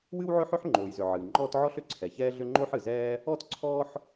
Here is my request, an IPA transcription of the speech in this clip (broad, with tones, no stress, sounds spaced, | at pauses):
w ɨ˥ w ʕ ʏ˥ ħ ʏ˥ ħ ŋ͡ǃ oː˩ j z ʏ˩ ʕ ɨː˩ ŋ͡ǃ ɔː˥ t ʕ ɔ˥ ɬ ʏ˩ ǀʰ ɛ˩ ç ɛː˥ ɮ ʏ˥ ŋ͡ǃ o˥ ħ ɨ˩ z ɛː˥ | ɔ˥ t ǀʰ ɔː˥ ħ